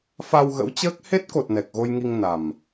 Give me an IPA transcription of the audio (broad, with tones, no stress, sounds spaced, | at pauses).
f a˧ w ɣ ə̰˧˥ w t͡ɕ əː˦˥ k̚ h e˦˥ t̚ k o˨˩ t̚ n ɛ˨˩ k̚ ɣ o˧ j ŋ i˧ ŋ n a˨˩ m